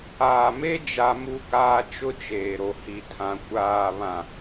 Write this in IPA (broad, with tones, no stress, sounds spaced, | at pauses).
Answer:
aː˨ m e˦ d͡ʒ a˦ m u˦ k aː˦ t͡ʃ ʊ˦ t͡ʃ eː˨ ɾ o˨ h i˨ tʰ ã˨ kʷ aː˨ β ã˨